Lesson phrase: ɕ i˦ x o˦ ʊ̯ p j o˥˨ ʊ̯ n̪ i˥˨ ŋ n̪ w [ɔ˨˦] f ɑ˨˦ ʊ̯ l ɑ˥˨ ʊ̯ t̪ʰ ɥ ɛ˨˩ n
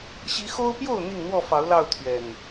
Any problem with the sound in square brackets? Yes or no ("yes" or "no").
yes